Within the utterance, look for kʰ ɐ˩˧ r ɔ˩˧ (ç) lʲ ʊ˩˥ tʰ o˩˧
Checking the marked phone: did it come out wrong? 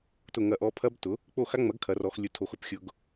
yes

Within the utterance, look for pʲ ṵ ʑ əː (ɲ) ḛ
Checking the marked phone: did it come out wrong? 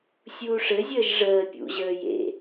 yes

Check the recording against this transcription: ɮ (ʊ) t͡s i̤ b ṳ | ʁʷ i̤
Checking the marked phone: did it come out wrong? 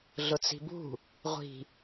no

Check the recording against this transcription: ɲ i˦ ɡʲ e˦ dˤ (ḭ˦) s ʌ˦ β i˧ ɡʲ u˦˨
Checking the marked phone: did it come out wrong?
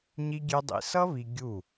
yes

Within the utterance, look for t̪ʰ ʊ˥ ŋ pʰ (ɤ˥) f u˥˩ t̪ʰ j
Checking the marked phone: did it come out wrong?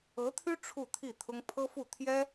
no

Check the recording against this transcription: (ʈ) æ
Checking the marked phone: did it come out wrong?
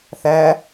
yes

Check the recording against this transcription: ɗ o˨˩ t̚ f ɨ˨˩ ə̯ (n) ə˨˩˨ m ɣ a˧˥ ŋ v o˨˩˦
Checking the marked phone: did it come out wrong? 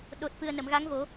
no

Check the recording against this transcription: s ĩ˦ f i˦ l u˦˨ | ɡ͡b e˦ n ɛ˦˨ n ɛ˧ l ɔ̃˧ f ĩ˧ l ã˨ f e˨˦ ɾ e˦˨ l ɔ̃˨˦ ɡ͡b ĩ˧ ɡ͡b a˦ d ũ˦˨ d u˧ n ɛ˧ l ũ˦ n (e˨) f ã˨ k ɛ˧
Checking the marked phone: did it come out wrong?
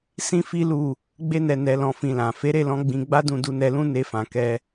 yes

